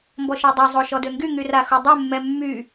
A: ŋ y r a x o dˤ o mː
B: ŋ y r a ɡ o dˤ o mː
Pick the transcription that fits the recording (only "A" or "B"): A